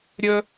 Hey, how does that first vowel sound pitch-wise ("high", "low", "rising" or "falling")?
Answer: high